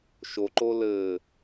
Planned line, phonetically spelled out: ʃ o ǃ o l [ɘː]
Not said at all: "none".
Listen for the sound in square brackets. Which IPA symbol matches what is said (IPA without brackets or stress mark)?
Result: ɘː